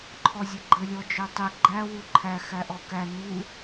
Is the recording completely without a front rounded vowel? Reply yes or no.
no